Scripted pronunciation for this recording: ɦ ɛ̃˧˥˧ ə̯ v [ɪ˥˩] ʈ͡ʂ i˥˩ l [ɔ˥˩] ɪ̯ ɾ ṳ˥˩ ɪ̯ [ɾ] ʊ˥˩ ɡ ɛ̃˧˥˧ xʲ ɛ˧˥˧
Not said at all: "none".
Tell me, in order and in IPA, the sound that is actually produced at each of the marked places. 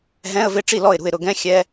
ɪ˥˩, ɔ˥˩, ɾ

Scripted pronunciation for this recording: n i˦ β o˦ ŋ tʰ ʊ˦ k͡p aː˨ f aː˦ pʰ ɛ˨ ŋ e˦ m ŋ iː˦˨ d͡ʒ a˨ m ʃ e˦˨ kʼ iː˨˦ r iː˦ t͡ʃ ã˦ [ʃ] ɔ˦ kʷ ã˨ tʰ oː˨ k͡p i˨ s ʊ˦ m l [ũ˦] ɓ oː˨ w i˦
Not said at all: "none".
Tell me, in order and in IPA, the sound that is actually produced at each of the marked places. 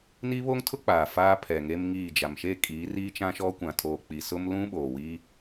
ʃ, ũ˦

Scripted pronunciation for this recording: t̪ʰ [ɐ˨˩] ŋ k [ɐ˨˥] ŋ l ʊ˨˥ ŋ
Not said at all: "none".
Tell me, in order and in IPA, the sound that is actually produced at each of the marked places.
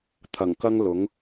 ɐ˨˩, ɐ˥

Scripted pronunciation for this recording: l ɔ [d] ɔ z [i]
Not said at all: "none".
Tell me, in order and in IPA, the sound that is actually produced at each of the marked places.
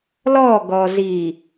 ɡ, i

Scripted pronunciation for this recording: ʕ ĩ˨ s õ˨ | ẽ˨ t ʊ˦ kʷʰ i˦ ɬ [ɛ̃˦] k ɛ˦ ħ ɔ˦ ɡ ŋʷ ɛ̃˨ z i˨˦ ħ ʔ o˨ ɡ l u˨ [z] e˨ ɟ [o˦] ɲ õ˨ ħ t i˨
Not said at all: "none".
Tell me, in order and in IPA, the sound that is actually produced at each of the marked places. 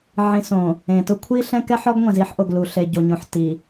ɛ̃˦, ɬ, o˨

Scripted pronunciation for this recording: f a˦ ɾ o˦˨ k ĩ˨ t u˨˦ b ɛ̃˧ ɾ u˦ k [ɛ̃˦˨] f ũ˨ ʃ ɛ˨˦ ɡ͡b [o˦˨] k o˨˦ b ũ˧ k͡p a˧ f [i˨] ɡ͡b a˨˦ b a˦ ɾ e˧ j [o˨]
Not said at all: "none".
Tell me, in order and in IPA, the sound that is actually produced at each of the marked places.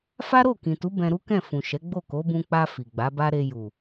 ɛ̃˦˨, o˦˨, i˨, u˨

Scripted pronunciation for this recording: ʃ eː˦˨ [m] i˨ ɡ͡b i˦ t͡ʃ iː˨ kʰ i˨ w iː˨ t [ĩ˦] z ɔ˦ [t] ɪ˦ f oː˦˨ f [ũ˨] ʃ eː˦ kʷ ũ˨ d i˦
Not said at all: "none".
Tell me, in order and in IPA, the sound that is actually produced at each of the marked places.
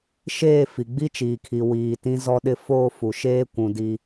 f, ĩ˦, ɗ, u˨

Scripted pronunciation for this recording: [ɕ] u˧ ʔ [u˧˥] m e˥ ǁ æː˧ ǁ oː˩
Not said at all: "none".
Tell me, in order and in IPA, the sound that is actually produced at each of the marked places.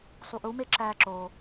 sˤ, u˧˥

